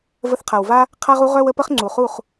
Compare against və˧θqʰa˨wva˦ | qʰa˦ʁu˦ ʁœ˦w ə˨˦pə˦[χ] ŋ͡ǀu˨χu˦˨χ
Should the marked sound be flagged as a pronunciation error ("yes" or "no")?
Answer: no